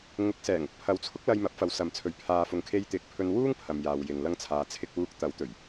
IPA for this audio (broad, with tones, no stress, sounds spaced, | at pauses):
ŋ ʊ˨˥ k̚ s ɛː˨˩ ŋ ʊ˨ k̚ pʰ ɐ˨˥ w t͡sʰ ʊ˥ k̚ l ɐ˧ j m ɐ˨˥ p̚ f ɐ˨˥ w s ɐ˨ m t͡sʰ ɵ˨˧ ɥ pʰ aː˧ f ʊ˧ ŋ kʰ e˧ j t̪ ɪ˨˥ k̚ pʰ ɵ˧ n w uː˥ ŋ pʰ ɐ˨ m j aː˨ w j ɪ˨ ŋ l ɐ˥ ŋ t͡sʰ aː˧ t͡sʰ ɪ˥ k̚ w uː˥ k̚ t̪ ɐ˨˥ w t̪ ɵ˨˩ ɥ